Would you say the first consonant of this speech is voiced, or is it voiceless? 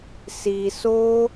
voiceless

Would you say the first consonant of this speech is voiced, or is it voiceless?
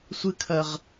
voiceless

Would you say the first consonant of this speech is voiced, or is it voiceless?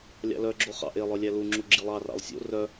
voiced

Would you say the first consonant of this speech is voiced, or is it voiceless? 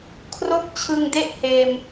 voiceless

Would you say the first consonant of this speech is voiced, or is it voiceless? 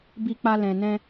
voiced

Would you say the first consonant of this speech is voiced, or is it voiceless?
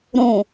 voiced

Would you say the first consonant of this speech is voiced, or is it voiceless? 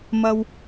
voiced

